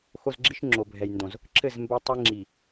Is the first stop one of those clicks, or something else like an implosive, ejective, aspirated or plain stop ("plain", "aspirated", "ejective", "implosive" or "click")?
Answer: click